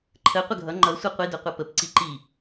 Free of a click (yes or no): no